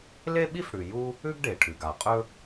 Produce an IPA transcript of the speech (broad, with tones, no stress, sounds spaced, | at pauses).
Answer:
l e˥ ɓ i˥ f ɽ ʉ˩ j u˥ | ʉ˥ ɡ ɖ e˩ ʈʰ ʉ˩ ɡ a˩ qʼ ɵ˥